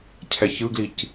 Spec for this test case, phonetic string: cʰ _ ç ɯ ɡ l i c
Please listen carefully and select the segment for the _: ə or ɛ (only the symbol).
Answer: ɛ